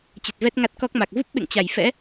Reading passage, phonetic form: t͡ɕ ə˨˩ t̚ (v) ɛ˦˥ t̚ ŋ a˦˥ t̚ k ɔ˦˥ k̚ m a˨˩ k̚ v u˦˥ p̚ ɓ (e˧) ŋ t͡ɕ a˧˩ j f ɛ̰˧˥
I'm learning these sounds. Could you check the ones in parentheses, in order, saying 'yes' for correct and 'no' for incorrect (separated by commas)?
yes, no